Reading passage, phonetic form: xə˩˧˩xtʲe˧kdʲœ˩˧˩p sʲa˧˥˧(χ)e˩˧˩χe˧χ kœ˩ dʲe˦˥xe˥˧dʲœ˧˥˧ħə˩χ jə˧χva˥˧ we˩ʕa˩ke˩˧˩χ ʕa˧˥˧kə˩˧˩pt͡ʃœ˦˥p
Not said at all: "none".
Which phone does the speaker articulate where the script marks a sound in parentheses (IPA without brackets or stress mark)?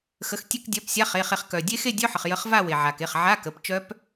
χ